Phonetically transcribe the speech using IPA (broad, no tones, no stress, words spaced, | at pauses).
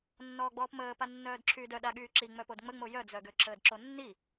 nːɔːɡ͡bɔːpməː panːœːdǁʰyːdœ ɗaɠyːǁi ŋ͡mœpodŋ͡məŋ͡mo jœd͡zœ ɡøǁəːdǁonːi